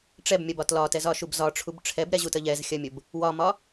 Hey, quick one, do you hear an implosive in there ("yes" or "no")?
no